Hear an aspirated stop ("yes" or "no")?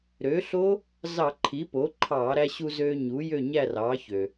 yes